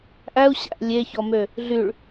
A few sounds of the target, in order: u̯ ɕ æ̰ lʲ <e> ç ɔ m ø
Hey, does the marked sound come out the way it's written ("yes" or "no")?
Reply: yes